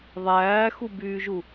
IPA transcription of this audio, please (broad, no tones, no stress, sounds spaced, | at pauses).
ðˤ æː x u b yː ʒ u